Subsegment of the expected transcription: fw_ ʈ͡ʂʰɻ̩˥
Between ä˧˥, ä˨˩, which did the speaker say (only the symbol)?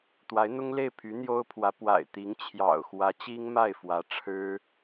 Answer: ä˧˥